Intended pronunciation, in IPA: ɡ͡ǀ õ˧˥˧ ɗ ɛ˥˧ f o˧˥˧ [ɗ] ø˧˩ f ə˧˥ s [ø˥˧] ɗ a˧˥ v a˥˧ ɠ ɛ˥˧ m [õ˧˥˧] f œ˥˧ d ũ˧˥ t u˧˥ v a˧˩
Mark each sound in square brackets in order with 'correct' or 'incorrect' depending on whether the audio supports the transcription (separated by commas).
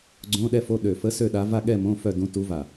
correct, correct, correct